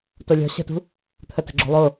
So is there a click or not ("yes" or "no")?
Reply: yes